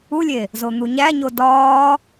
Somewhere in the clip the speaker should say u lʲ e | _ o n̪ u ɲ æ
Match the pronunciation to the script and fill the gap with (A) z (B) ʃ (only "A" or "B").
A